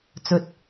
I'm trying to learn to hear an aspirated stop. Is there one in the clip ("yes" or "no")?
no